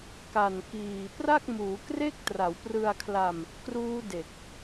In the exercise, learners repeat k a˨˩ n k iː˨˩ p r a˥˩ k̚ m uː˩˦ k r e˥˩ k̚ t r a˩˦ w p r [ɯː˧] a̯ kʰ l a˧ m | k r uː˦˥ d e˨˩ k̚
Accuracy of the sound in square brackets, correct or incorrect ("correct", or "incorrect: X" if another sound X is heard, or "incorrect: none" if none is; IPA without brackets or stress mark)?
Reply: incorrect: ɯ˧